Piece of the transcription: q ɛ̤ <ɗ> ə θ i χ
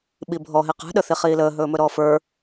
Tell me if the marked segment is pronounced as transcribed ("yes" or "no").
yes